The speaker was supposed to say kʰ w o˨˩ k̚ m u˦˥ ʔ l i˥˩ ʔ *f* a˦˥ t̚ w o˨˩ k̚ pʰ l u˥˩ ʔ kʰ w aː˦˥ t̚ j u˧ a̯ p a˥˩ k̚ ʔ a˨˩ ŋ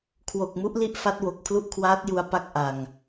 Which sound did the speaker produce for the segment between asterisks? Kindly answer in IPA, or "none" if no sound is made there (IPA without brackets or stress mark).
f